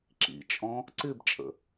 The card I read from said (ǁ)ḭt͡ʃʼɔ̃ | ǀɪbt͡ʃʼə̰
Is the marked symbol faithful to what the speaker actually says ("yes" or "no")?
yes